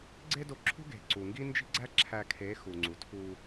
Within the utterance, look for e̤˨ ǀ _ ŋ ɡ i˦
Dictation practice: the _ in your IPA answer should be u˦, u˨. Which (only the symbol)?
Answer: u˨